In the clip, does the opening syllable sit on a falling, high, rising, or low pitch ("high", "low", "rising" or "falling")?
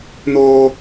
high